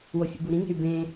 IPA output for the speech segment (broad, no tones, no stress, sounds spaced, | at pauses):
w o sʲ ṵ b u ɾ ĩ ŋ e̤ y̯ b ẽ